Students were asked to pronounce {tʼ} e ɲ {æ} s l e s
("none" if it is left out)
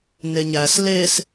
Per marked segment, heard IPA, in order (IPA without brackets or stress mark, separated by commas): n, æ